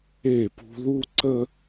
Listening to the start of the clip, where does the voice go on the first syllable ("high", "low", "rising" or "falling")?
falling